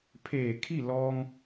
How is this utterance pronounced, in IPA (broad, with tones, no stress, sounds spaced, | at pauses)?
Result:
pʰ eː˧˩ kʰ i˥˨ l ɔː˧ ŋ